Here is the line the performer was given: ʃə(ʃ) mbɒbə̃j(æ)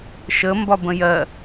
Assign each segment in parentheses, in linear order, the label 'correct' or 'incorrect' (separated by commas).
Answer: incorrect, incorrect